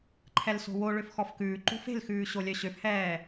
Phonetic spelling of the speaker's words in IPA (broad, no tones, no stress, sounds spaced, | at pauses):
ǃʰ ɛ l s o̤ w o ɭ ø f x ɔ f k ʉː ǃ ṳ f e̤ l x ʉː ɕ o lʲ œ ɕ ø f h ɛː